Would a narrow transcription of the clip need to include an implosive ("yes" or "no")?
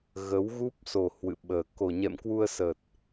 yes